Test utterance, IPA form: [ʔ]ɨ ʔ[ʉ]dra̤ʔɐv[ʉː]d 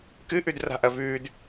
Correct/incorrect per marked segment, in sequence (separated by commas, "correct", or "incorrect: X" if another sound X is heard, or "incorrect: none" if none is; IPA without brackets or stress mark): incorrect: k, correct, correct